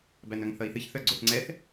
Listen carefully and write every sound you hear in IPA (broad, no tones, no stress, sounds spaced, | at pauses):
b æ n œ ŋ θ ʌ i̯ θ ɨ ç θ œ ɡ͡ǀ o θ ŋ͡ǀ ɛ θ